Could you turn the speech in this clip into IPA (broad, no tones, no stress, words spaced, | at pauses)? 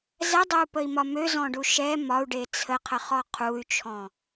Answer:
zɛdˤøu̯pəi̯mɒ møzɔ̃ɖu ʃɛ mɒu̯ɖe t͡sʰəqʰəχɔ qʰuy̯t͡ʃʰɔ̃